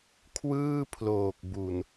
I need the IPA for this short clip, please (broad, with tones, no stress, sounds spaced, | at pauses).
kʰ w ɯː˥˩ pʰ l oː˨˩ k̚ b u˨˩ n